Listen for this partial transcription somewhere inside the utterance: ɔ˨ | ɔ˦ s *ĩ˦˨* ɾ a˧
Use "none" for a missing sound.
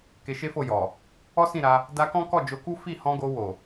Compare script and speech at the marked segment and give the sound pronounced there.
ĩ˦˨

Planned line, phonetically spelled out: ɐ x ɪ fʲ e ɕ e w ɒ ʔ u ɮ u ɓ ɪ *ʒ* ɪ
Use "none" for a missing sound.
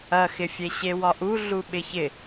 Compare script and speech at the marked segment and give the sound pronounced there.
ç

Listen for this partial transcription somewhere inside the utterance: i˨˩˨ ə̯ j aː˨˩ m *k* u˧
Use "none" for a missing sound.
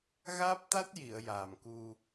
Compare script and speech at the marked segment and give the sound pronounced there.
k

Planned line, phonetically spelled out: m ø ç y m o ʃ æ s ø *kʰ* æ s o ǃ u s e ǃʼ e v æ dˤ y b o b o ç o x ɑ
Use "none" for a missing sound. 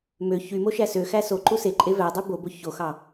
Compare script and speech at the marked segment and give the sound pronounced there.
x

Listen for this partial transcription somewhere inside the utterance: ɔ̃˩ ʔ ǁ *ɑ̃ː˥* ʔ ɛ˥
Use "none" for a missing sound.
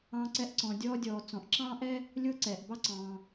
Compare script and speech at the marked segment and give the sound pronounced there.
ɑ̃ː˥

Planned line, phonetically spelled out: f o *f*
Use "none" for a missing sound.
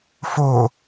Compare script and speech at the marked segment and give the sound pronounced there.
none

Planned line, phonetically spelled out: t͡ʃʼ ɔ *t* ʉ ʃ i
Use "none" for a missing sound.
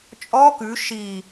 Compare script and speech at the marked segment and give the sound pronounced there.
k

